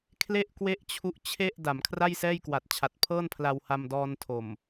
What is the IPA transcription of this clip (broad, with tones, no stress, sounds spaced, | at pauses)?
kʰ l e˥˩ ʔ k w e˥˩ ʔ t͡ɕʰ u˦˥ ʔ t͡ɕʰ e˥˩ ʔ d a˩˦ m kʰ r a˥˩ j s ɛː˥˩ j k w a˨˩ t̚ t͡ɕʰ a˨˩ t̚ pʰ ɤː˥˩ n pʰ l a˧ w h a˧ m d ɔː˧ n tʰ o˨˩ m